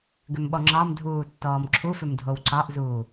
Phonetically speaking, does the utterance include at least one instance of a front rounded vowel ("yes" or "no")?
yes